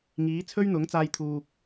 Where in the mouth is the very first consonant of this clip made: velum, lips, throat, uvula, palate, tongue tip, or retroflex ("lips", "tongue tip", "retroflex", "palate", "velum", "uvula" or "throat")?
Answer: velum